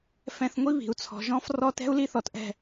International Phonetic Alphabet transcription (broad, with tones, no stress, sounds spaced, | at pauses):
f ɛ̃˧ θ ŋʷ i˦ β i̤˨ u̯ t͡sʰ ɔ̤˨ ʒ ɔ̃˦ f r ɔ˦ t ɛ̤˦ u̯ l i˦ θ ɔ˨ t ʔ ɛ̤˦˨